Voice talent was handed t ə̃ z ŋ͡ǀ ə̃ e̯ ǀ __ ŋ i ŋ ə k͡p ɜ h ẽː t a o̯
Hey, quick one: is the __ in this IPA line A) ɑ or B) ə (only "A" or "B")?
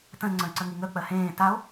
B